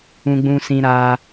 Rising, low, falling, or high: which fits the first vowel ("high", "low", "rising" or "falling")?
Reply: high